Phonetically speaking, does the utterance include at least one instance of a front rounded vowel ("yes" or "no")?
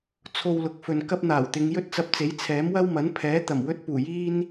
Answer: no